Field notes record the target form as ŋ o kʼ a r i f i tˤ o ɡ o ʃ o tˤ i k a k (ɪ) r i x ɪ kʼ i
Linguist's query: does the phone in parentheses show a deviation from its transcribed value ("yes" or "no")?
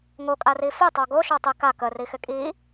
yes